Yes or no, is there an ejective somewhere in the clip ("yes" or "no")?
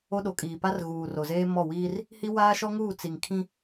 yes